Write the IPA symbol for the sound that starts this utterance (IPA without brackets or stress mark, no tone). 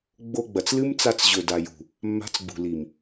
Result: ɡ͡b